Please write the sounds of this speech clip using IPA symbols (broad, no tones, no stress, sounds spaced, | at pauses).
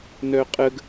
n œ qʼ ə ɡ